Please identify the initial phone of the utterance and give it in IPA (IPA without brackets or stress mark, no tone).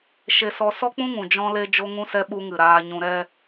ʃ